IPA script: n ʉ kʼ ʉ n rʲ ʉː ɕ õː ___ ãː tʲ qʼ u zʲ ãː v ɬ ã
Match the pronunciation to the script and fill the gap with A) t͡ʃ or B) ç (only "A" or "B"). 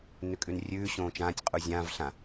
A